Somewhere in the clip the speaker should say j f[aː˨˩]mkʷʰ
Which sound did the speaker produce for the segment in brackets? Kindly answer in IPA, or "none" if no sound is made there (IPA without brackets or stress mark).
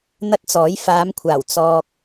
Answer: aː˨˧